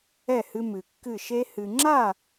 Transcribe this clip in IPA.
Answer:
ɛ˦˨ h ɨ˧ m ɨ˨ kː ɨ˦˨ ʃ e˦ h ɨ˨ ŋ͡ǁ a˦˨

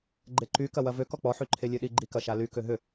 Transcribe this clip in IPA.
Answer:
ɡ͡ǃ e ǃ y k ɐ w ɐ v ø k ɔ k͡p ɔ ħ y ǃʰ e lʲ ø ɗ i ɡ͡ǃ i k ɐ ʃ a l y k ø ɦ ʏ

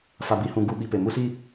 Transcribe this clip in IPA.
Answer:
f a˨ b i˨ h ũ˨ ɡ u˨ ɓ i˨ p e˨ m u˦ s i˦

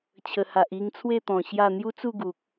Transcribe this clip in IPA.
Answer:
t͡ɕʰ ə˨˩ h a˨ ʔ i˧ ŋ t͡sʰ w e˥˧ t̪ ɔ̃˨˩ ɕ j a˥˧ n̪ j u˦ t͡s u˥˧ ɡ u˨ k̚

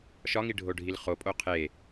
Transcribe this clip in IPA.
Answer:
ʃ ɒ ŋ i ɖʱ o ɖʱ i l χ o pʼ o qʰ e

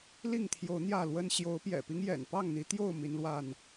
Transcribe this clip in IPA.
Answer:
l i˥˨ ŋ t̪ʰ j o˨˦ ʊ̯ n̪ j ä˥˨ l w ə˦ n ɕ j o˨˦ ʊ̯ p j ɛ̰˨˩ p i˦ ŋ j ɛ̰˨˩ n p ɑ˥˨ ŋ n̪ i˨˦ t̪ j o˥˨ ʊ̯ m i˨˦ n l w a˥˨ n

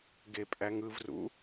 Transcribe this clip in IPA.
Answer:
ɡ e pʼ æ ŋ ɯ v r ṵ

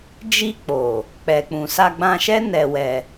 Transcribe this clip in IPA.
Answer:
d͡ʒ i˧ k͡p o˨ | k͡p ɛ˨ k͡p ũ˨ s a˧ ɡ͡b ã˧ ʃ ɛ˦ n ɛ˧ w ɛ˧

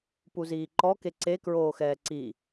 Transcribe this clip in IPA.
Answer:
p u z iː ǃ ɔ k e ǀ e k ɹ oː x ɛː ǀ i

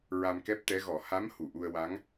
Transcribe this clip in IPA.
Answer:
ɹ a˧ m k ɛ˦˥ p̚ t̪ ɛ˧˥ ɣ ɔ˨˩˦ h a˧˥ m h u˨˩˨ ʔ u˧ ə̯ w a˧˥ ŋ

